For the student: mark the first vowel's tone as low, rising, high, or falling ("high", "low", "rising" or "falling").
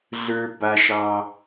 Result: high